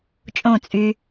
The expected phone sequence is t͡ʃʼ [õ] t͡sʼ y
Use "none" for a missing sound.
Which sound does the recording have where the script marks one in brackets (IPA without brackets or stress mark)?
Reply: õ